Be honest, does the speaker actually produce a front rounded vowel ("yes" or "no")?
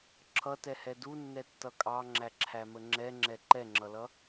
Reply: no